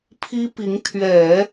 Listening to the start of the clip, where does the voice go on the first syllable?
high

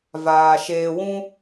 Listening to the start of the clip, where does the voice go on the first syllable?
low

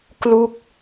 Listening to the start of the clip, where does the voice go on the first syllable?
falling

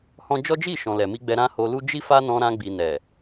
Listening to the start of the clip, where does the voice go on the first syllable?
high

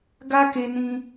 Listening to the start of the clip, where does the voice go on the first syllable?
high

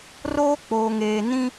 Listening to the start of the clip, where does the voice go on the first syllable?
high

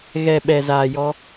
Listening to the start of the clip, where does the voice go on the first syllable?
low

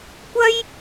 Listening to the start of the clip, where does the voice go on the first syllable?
high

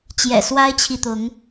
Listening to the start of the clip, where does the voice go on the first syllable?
low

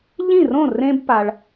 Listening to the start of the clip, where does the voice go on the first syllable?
falling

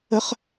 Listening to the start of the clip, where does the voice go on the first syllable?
high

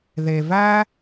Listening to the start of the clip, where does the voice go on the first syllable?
low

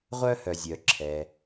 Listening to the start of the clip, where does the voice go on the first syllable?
high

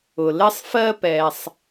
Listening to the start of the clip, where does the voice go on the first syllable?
low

